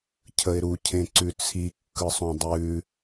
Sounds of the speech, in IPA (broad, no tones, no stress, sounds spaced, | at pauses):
cʰ ə ɪ̯ ɾ u cʰ ẽ ǀ ʉ t͡sʰ i kː ɯ sˤ õ dˤ ʉ